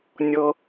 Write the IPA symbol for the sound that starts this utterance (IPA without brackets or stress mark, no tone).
nʲ